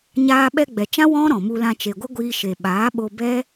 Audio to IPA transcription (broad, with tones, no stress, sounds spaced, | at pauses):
ɲ aː˧ ɓ ɛ˧ ɡ͡b ɛ˨ t͡ʃ ã˦ w ɔ̃˦ ɾ ɔ̃˨ m u˧ l ã˧ t͡ʃ e˨ ɡʷ ə˦ ɡʷ iː˧ ʃ e˨ ɓ aː˨˦ ɓ o˧ b ɛ˦